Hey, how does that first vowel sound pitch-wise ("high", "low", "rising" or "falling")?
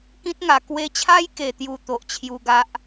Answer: high